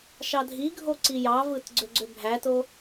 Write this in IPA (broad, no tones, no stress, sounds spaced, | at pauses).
ʃ ɑ dʱ i ɡʱ o ǀ i j ɑ v ɯ t ɡ͡ǀ ø ɡ͡ǀ ø bʱ æ t o